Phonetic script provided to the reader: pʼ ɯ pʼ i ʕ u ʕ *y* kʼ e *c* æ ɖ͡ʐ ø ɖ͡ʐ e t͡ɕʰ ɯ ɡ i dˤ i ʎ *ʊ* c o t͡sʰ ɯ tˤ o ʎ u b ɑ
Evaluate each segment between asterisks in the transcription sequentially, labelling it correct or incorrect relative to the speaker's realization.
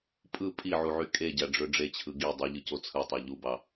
correct, incorrect: ɟ, incorrect: ɯ

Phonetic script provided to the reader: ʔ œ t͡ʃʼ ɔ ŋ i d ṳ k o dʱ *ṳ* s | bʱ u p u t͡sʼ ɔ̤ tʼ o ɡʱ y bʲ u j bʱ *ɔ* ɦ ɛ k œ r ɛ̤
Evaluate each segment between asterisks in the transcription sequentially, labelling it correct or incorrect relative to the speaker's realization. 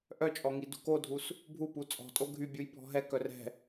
incorrect: u, incorrect: ɔ̤

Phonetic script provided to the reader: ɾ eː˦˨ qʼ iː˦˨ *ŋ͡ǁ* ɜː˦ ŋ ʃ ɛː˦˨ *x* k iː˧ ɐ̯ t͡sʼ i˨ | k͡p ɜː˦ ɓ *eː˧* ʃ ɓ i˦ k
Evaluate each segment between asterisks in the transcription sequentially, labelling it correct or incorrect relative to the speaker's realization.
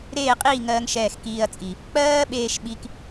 incorrect: ŋ, correct, correct

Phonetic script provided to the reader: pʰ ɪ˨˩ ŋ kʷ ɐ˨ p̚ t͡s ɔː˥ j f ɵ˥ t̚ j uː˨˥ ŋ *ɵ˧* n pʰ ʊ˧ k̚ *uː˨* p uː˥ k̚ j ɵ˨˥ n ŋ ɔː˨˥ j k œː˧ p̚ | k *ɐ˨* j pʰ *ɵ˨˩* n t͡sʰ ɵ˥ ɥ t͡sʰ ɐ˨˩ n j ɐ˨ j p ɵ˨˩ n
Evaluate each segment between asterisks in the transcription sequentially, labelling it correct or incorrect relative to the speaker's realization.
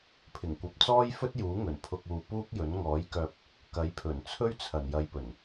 incorrect: ɵ˨˩, correct, incorrect: ɐ˨˥, correct

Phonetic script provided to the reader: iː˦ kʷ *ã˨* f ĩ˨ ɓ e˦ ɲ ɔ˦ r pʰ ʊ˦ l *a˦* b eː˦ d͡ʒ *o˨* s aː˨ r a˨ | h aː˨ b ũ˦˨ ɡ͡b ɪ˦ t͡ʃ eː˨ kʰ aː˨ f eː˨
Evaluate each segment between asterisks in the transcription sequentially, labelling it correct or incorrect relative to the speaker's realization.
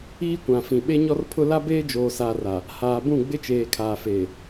correct, correct, incorrect: oː˨

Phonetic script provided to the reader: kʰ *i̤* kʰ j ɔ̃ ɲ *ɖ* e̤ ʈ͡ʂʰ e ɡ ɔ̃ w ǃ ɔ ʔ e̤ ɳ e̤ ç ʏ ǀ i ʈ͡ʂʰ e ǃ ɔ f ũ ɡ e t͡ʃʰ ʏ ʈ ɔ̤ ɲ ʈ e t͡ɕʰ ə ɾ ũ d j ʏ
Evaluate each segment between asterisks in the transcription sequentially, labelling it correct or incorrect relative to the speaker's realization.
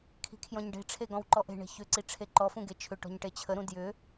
correct, correct

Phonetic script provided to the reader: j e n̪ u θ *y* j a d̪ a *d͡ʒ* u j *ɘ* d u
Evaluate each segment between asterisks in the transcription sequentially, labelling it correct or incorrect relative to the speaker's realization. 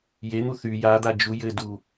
correct, correct, correct

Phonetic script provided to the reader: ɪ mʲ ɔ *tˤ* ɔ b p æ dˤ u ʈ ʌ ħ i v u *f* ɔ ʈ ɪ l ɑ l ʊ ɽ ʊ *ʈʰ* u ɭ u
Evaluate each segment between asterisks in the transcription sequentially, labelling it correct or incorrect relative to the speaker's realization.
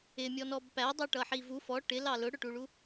incorrect: n, correct, incorrect: ʈ

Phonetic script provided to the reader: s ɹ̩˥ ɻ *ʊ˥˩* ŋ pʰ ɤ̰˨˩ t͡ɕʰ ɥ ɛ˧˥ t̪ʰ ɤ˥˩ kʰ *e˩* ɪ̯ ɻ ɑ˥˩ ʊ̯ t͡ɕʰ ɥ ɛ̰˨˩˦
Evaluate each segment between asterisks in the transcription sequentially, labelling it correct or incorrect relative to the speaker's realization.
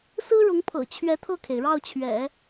incorrect: ʊ˧˥, correct

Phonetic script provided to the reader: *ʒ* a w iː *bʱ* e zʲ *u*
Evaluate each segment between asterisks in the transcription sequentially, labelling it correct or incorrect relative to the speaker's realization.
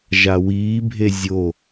correct, correct, incorrect: o

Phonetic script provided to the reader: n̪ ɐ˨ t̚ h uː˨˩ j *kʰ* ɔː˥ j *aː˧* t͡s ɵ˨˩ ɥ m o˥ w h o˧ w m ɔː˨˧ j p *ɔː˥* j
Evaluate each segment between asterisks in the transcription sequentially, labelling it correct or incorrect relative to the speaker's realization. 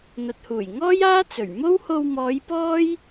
incorrect: ŋ, incorrect: aː˥, correct

